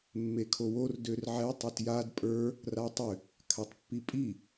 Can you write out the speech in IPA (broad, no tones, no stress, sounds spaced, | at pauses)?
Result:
mː e kʰ o w o r d ø r ʕ ɛ tˤ ʏ t j a d pʼ ə˞ | r a tˤ ʏ | kʰ a tˤ pː i pʼ i